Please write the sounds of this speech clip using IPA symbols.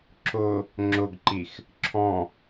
ǁʊ | ŋ͡ǁʊɡǃix | ǁʰɔ̃

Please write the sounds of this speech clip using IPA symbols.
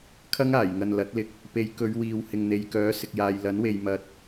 kʰɐ˥ŋaː˨˩jŋɐ˨n lɐ˨˥t̚lɪ˧k̚ | pe˨˧j kɵ˨˧ɥwiː˨w hɪ˨ŋn̪e˨jkœː˨˥ sɪ˨k̚jaː˨jlɐ˨˥nwe˨j mɐ˨t̚

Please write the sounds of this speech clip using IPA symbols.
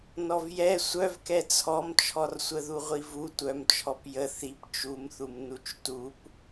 nɔvjɛ sʷœvkɛ t͡sʰɔmt͡ʃʰɔrsʷə ðuʁʷivu tʷœmt͡ʃʰɔp jə θip t͡ʃumθum nut͡ʃtup

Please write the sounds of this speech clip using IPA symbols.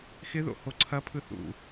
xɪðo̰ hoǀʰɐpʰɯ θṵ

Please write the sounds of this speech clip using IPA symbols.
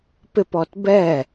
pɪpɔt bɛ

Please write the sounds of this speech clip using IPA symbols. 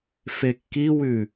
fekːiwʉ

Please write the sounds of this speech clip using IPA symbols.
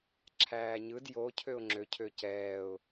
ǁʰæːɲɯd jo cʰøʊ̯ŋ͡ǁø cʰøcɛːʊ̯

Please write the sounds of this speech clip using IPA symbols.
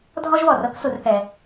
dʱɔ˥ʒβɔ˩r ɤ˦ksu˨rθɛ˨

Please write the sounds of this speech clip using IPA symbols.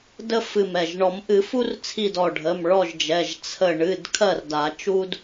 də˥ fɨ˧˩m ɛ˧˩ʒ ɳɔ˨˩˦mʔɨ˨˩˦fu˥rt͡sʰi˧˩d ɔ˧˩ɖʱə˩˧˩m ɭɔ˥˨ʒd͡ʒɛ˩˧˩ʒ t͡sʰə˧˩ ɳɨ˩˧˩d kʰɜ˥˨rda˨˩˦t͡ʃu˥d

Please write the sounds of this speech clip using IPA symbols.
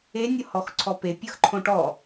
enʲɤhɔxǀʰɔ pepʲɤxǃʰõ ʈɔ

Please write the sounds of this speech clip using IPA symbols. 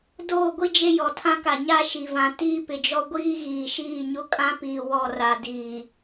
doː˦˨ɡʷi˦ d͡ʒe˦jɔ˨tʰã˦ka˨ ɲa˦ ʃi˨ vã˨ tiː˦pɪ˨d͡ʒɔ˦ ɡʷiː˦ɣiː˨ʃiː˦˨ɲʊ˦ kʼã˦piː˨ wɔ˦˨ ra˨ diː˨

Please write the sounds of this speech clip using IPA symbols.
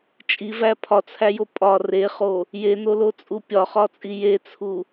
t͡ʃʼivæ pʰɒt͡sʰæjo pʼɒ reχo | jenolot͡sʼu pʲɒχɒt͡sʼi jet͡sʰu

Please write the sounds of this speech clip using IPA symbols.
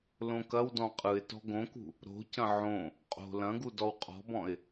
lõkɐwdɔ̃ qʼɯɪ̯tɔ̤ ɡõkṳ | ɾo̤cɐ̃ ʕõ | qʼo̤ lɐ̃ɡu dɔwqʼɔ̤bɔ̃ɪ̯

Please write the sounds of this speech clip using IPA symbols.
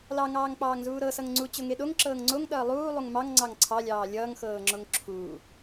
lɑŋɑːŋk͡pɑːŋzuː ɾɤsʌŋ ŋ͡ǀut͡ɕoŋe ɗoŋǁɤːŋ ŋ͡ǀoŋɗʌː lˠuː lˠuŋmɑŋ ŋ͡ǀɑŋǀʰɑlʲɑː lʲʌːŋxɤːŋ͡ǁoŋ ǁʰuː

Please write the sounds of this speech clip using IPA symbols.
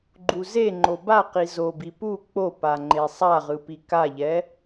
ɡ͡ǃuze ŋ͡ǃobaqi zobi pu k͡popaŋ͡ǃe sˤaʁɯpi kaʎɛ

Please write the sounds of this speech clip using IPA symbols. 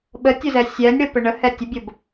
ɓətʲʊzɛ sʲɛnʲɽəpə ɳəhɛ tʲʊbʲob

